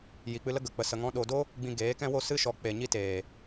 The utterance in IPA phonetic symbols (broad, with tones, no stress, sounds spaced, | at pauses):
j i˨ k͡p ɨ˧ l ə˦ ɡ ə˨ k͡p ə˨ s ə˨ ŋ ɔ̃˧ ɗ o˨ d o˦ | ɡ͡b ĩ˧ ɡ eː˨˦ k ɛ̃˦ w o˦˨ s ɨ˦ ʃ ɔ˨˦ k͡p e˨ ɲ i˦ t eː˨